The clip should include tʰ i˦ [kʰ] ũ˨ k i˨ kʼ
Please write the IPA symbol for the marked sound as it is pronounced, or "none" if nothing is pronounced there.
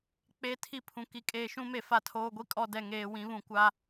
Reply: pʰ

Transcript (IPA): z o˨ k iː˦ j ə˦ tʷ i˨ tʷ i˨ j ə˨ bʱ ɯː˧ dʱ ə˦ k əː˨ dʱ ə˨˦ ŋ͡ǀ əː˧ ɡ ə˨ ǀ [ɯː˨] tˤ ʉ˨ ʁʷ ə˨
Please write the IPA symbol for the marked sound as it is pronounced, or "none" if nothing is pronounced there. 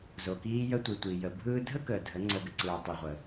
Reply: ɯː˨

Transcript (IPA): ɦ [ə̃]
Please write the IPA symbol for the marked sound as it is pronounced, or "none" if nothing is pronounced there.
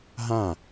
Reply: ã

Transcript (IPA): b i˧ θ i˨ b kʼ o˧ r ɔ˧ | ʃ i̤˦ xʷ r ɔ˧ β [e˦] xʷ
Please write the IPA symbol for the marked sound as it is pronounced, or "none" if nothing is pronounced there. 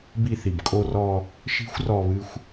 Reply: ɨ˦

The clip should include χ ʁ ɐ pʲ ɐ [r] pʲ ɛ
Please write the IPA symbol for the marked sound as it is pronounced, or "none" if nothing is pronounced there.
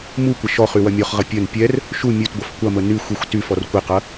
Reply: n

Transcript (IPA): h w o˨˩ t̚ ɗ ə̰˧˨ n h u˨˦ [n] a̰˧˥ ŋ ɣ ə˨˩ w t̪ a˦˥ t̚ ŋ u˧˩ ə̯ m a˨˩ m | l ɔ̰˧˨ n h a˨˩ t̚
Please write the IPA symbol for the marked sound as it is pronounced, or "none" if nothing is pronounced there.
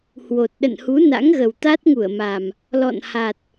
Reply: n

